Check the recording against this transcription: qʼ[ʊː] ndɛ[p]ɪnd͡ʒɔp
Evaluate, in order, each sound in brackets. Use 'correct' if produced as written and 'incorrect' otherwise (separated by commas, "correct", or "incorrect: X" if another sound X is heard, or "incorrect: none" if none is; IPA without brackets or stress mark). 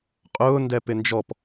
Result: correct, correct